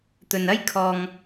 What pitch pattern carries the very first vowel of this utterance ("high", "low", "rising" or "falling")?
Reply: low